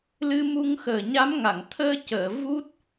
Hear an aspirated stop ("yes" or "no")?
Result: yes